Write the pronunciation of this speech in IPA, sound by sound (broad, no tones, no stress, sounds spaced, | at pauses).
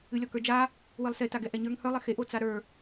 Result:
ɨ lʲ ɔ k ə˞ d͡ʒ a | w ɨ lˠ s e t a ɡ ɛ ʔ ɛ ɲ ə˞ ŋ h œ lˠ ɪ x e ʔ o t͡s a ɾ ə˞